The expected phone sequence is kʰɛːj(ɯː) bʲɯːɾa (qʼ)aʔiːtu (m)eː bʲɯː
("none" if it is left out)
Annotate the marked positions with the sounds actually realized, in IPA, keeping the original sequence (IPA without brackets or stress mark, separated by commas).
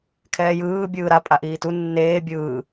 ɯː, pʼ, nː